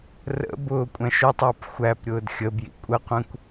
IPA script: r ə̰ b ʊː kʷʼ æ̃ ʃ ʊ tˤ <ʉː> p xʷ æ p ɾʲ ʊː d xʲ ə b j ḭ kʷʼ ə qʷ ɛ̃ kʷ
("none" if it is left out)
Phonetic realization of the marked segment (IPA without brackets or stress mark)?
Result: ʊː